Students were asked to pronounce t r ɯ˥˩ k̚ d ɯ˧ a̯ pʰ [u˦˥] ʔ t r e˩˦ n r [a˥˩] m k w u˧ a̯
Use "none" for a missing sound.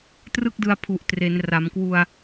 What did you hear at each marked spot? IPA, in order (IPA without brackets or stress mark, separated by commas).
u˨˩, a˩˦